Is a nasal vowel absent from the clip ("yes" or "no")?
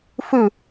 yes